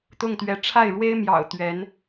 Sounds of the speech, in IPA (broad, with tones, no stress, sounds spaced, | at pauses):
t̪ ʊ˥˩ ŋ t̪ ɥ ɛ˧˥ ʈ͡ʂʰ a˥˩ ɪ̯ ɻ w e˥ ɪ̯ m j ɑ̰˨˩ ʊ̯ t̪ ɥ ɛ˧˥ n